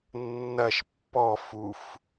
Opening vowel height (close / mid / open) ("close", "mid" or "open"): open